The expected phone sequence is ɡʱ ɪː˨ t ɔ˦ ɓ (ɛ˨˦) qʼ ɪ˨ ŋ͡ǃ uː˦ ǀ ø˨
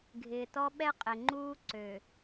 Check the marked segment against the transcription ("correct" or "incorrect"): incorrect